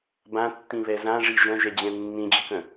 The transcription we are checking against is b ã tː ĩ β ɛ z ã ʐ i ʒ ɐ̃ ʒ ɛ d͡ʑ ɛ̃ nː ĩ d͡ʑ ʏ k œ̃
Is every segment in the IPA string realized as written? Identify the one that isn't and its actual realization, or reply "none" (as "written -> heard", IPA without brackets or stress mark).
none